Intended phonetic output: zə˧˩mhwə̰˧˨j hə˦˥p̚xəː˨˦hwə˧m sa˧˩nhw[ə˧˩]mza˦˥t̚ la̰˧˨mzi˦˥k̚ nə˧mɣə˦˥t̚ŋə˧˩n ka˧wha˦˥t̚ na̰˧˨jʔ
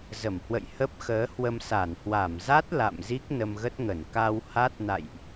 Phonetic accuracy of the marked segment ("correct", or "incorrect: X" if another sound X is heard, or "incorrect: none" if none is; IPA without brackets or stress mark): incorrect: a˧˩